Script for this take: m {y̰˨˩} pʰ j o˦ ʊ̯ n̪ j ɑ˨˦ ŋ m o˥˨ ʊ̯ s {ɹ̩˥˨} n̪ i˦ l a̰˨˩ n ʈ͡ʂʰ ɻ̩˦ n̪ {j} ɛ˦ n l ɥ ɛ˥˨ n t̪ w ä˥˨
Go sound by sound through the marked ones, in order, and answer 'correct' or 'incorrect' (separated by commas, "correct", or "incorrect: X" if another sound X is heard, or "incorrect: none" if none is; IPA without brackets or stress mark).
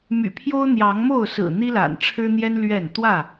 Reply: correct, incorrect: ɹ̩˨˩, correct